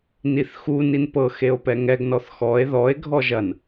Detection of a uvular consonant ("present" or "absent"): absent